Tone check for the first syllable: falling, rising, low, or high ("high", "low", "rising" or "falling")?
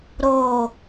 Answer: low